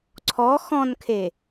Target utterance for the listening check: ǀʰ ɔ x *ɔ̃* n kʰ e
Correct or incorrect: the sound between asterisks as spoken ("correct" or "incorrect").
correct